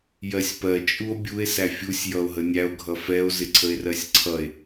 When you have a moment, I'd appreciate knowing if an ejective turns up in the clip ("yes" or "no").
yes